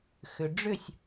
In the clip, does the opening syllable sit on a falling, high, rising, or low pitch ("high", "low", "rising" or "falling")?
low